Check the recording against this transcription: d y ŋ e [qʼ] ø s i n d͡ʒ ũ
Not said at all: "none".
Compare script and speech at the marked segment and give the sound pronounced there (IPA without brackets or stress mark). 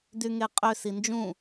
qʼ